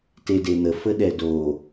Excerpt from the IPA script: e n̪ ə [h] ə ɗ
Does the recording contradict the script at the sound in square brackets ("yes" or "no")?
yes